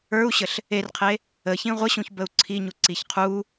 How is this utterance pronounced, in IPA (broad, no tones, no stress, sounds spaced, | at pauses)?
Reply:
ə˞ u̯ ɕ ə ɬ | e r qʰ e | ə ç ĩ ʁʷ ə ɕ ũ ç b ə u̯ ǀʰ i ɲ u ǀ i ç qʰ u